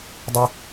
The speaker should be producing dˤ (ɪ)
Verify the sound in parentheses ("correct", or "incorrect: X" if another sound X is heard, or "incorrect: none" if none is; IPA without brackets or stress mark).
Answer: correct